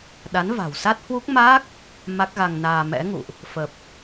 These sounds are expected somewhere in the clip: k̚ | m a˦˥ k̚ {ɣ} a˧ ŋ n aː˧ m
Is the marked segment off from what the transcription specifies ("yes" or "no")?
no